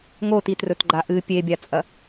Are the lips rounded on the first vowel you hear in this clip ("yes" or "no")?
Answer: yes